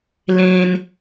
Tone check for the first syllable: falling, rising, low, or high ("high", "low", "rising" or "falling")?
high